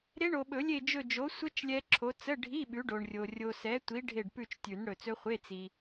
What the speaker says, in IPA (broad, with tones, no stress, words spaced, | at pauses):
ɾe˦˥ɳo˨ɓɵ˨˩˦lʲe˦˨ d͡ʒɵ˦˨d͡ʒo˨˥ sʷə˦˥t͡ʃ lʲɛ˦˥ǁʰo˨˥ t͡sə˧˥˧ɖʱi˧˥˧ ɓʉ˨˥ɖo˨ɳrʲo˨ rʲo˨sɛ˨˥tʷi˨˥ ɖʱe˦˨ɖpʉ˦˨t͡ʃtʲʉ˨˩˦n ɽɵ˨t͡sɵ˦˥χʷe˧˥˧ t͡si˨